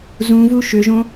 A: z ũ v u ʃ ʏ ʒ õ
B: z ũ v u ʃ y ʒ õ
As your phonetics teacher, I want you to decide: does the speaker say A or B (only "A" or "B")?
A